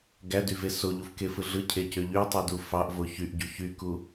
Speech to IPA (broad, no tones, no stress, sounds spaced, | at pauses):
ɡ æ d y v e s o ʎ u f k e f ɯ ɮ ɯ cʰ e c ø ʎ y tˤ u d u f ɑ ʔ v o ç y ʔ ɟ u ç y k u